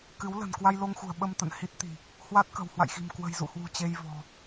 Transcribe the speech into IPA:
kɨ˨˦wlə̤˨˩n kwa˧jlo˧ŋxṳ˨˩ə̯ ɓə˧m t̪ə̰˧˨nhi˦˥t̚t̪i̤˨˩ | hwa˦˥t̚kə̤˨˩w hwa̰˧˨jxi̤˨˩m kwə̤˨˩jzṵ˧˨hwṳ˨˩ t͡ɕe˧jvɔ̤˨˩

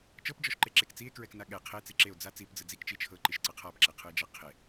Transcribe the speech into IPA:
t͡ʃɤpd͡ʒɔʃǃeǁek t͡sie̯kɹɛkna ɠɛ qʰet͡si ǁeo̯ d͡za t͡sipd͡zɯ d͡zikt͡ʃi t͡ʃʰɤǃiʃǀɤ qʰapǁɛqʰɯe̯d͡ʒa qʰe

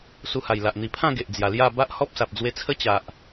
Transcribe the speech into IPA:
su˧ha˨˩jla˨ʔ n̪i˨˩pʰã˥˧ ɡe˨ʔd͡zja˨˩lja˥˧ ba˦ʔhɔ˦p̚sa˨p̚ d͡zwe˧t͡sʰə˦ t͡ɕa˨ʔ

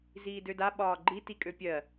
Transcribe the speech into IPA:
ziːdøda ɓɒːɡ͡ǃi tikʼøpʲɜ

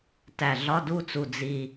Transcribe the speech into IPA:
tæ˨˩ɮɒ˧˥˧du˥˨t͡su˨˩ d͡zi˨˩

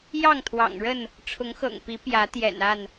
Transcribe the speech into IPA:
jɑ˥˨ŋt̪ʰwɑ̰˨˩ŋɻə˥˨n | ʈ͡ʂʰʊ˨˦ŋxɤ̰˨˩ŋpi˨˦ pjä˨˦ t̪jɛ̰˨˩na˥˨n

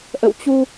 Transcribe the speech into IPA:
ʔə̰˧˨wt͡ɕu˧

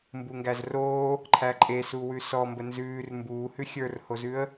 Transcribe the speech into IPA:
mbuŋɡæzroː | ǃʰæǃʼesuwʉ sɔ mbənzʉːr mbuːhʉ xʲə˞rhozʉə̯

